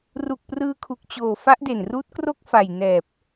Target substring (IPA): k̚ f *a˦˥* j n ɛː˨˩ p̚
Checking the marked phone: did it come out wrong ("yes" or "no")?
yes